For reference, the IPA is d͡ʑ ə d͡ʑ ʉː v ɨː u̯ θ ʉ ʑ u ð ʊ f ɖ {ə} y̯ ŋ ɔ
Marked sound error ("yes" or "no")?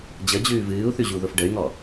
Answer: no